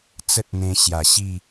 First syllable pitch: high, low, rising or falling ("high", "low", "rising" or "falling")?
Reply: high